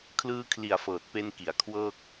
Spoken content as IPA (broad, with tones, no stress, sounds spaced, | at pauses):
kʰ l ɯː˧ kʰ l i˨˩ a̯ f ɤː˨˩ t̚ p e˧ n k i˩˦ a̯ kʰ w ɤː˥˩ k̚